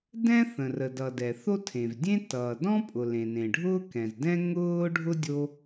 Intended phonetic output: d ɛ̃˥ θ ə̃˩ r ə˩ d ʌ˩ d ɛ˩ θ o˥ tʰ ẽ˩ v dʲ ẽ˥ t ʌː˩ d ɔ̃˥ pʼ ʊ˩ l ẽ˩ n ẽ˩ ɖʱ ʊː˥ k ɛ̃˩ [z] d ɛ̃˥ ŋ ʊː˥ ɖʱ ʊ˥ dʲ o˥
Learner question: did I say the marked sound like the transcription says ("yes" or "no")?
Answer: yes